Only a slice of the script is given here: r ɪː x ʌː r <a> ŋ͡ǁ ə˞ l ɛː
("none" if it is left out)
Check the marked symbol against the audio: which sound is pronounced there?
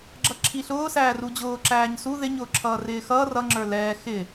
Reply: ʌ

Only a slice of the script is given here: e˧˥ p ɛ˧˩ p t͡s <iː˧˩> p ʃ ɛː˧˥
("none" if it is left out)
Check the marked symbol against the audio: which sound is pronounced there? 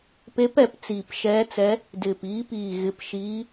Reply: iː˧˩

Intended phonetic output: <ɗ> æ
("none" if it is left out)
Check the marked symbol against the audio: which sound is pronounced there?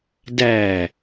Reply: d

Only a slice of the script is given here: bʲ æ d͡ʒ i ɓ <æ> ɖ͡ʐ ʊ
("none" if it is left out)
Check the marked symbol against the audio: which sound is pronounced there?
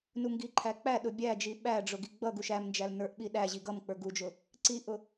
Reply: æ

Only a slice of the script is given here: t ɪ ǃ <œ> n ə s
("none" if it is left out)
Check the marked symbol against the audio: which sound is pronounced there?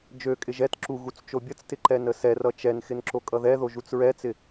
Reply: ɛ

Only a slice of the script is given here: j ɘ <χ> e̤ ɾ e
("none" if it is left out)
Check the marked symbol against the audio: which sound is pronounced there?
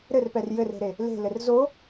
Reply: r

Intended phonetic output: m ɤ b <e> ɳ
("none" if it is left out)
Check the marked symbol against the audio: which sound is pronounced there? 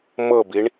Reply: i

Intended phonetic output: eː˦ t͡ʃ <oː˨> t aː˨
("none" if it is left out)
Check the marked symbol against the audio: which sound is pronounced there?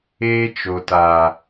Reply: o˨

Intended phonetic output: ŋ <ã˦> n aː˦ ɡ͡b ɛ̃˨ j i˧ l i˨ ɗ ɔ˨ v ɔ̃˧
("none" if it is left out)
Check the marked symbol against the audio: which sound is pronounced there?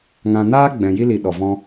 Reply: ã˧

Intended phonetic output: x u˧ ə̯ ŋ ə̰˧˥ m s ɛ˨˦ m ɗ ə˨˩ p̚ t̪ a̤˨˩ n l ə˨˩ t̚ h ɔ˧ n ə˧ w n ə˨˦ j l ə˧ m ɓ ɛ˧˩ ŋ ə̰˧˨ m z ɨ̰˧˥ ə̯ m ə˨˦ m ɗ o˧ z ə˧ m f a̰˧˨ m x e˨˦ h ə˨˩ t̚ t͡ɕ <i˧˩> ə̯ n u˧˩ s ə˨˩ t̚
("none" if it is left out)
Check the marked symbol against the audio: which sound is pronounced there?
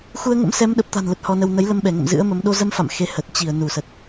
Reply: i˧˩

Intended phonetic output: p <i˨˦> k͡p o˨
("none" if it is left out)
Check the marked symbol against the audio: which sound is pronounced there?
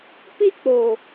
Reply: i˦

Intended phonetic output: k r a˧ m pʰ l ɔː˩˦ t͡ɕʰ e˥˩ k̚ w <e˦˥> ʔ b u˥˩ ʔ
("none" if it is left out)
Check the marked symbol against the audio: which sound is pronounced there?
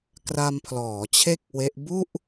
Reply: e˦˥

